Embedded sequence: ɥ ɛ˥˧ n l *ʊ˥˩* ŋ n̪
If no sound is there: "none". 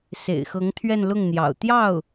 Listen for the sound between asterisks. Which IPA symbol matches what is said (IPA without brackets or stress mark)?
ʊ˥˩